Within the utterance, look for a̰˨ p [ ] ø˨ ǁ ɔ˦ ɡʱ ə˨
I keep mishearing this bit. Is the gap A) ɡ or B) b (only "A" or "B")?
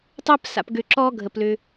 A